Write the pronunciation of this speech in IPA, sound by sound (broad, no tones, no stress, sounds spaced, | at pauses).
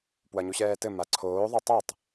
p w ɐ ɲ u ɕ ɛː t ɘ m a ǀʰ oː ðˤ o tˤ e tˤ